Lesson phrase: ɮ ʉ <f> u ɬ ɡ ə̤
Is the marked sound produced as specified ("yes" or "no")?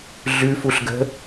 yes